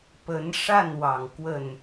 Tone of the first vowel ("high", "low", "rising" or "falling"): rising